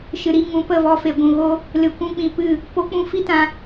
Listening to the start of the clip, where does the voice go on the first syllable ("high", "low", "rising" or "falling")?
low